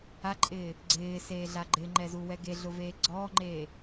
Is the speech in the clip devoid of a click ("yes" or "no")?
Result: no